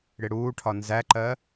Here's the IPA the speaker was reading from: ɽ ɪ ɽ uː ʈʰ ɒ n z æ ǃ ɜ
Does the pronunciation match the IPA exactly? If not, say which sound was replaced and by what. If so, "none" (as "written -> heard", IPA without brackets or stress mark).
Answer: none